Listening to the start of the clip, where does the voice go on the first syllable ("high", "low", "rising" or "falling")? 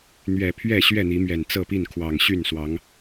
low